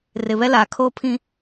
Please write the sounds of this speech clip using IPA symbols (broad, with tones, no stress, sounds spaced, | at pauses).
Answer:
r ɪ˨ β ɛ˦ l aː˨ kʰ oː˦ pʰ ĩ˦